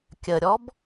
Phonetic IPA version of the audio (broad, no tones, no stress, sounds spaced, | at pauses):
kʲ ə ɾʲ ɔ b